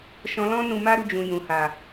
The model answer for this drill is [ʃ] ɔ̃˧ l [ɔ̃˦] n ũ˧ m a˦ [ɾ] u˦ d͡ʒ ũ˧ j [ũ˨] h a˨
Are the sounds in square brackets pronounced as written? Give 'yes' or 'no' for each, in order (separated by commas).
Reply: yes, yes, yes, yes